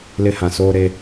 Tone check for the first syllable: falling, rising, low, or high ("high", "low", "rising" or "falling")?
high